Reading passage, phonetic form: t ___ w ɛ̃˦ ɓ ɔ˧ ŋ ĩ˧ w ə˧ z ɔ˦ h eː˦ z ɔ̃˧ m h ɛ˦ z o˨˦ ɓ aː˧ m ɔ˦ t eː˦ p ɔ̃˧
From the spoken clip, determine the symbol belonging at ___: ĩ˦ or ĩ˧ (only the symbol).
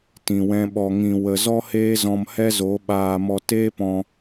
ĩ˧